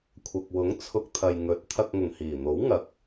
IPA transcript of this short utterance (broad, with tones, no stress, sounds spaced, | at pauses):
kʷʰ ɐ˨ k̚ w ʊ˨˥ ŋ t͡sʰ ʊ˧ k̚ t̪ʰ ɐ˨ j ŋ ɵ˨˥ t̚ t̪ʰ ɐ˧ k̚ ŋ ʊ˨˩ ŋ h iː˨˩ n̪ o˨˥ w ŋ ɐ˨˥ k̚